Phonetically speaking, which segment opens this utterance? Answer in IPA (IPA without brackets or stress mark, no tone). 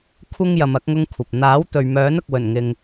kʷʰ